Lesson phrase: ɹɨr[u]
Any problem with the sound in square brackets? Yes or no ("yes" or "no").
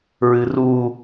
no